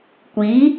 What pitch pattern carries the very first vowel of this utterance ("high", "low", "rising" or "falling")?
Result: rising